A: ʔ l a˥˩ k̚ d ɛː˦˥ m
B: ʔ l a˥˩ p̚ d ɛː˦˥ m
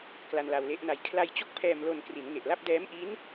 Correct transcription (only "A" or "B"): B